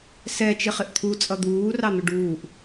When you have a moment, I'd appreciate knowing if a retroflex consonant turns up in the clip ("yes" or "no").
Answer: yes